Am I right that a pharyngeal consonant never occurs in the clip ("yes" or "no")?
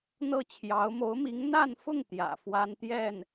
yes